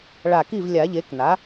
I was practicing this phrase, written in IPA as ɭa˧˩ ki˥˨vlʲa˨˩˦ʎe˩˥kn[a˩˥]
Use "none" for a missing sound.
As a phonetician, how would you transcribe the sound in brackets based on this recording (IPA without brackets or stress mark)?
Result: a˩˥